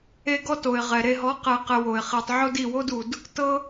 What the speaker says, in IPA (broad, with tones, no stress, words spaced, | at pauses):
e˦ɡɔ˦to˨ɪ̯ ʁɛ˨ɾe˧ ɦɔ˨˦qe˨qe˨ wo˨ɪ̯χi˨tˤ ʕo˦di˦˨ wo˦du˨d | tɤ˦